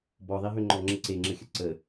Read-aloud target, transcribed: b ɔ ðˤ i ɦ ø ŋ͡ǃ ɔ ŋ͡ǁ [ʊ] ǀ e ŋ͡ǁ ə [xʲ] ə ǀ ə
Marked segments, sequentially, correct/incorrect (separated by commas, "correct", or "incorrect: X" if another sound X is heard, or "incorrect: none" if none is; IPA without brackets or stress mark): incorrect: ə, correct